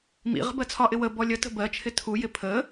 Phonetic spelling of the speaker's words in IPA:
m ḭ ʁ ə̤ b ɜ t͡sʰ ɒ ʔ ɪ w ə b ɔ lʲ ə t ə̤ b ɜ t͡ʃʰ ɪ tʰ u j ɪ pʰ ə

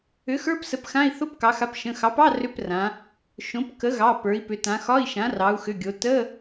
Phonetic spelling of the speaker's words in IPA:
ʏ˩˥ x ə˞˧˥˧ p s ə˩˥ p x ã˧˥˧ i̯ θ o˧˥˧ p k ɑ˩˧ x a˩˥ p ʃ ə̃˩˧˩ x ɑ˩˥ p ɑ˧˥˧ r ʏ˧˥˧ p r ã˩˧ | ʃ õ˩˥ p k ə˩˥ ɣ ɑ˩˧˩ p ə˞˩˧ i̯ p ʏ˩˧ t ã˩˧ x ɒ˧˥˧ i̯ ʃ ã˩˥ r ɑ˩˧ u̯ x ʏ˩˧˩ ɡʲ o˩˧ t ə˧˥˧

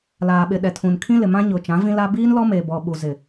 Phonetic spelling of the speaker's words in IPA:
l aː˨ ɓ ɪ˨ ɗ ɛ˨ tʰ ũ˨ n kʰ ĩ˦ l ɪ˨ m ã˦ ɲ ʊ˨ t͡ʃ ã˨˦ v ĩ˦ l a˦ b iː˦ n l ɔ˦ m eː˨ b ɔ˨ ɓ u˨ z ɪ˨

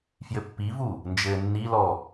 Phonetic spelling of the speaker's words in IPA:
f j ɘ pː i v u | n d͡ʒ ɘː nː i l ɔ

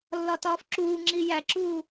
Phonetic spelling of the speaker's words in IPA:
lː ɒ t ɒː f ǁ uː ŋ͡ǁ i j æ ǁ uː

